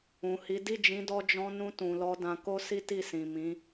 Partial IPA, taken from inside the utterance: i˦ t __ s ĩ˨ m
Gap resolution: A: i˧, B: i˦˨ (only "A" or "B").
B